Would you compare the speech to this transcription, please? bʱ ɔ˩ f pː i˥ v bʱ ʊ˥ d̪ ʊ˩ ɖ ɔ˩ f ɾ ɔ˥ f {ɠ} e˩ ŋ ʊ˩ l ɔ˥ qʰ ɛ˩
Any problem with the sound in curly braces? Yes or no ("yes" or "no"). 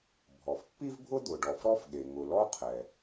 no